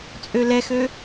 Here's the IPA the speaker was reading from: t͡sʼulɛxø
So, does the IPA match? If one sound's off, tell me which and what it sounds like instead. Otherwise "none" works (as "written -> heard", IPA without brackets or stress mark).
u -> ø